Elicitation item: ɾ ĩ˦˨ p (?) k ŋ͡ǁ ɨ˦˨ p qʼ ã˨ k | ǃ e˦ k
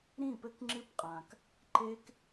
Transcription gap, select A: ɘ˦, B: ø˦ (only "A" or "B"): A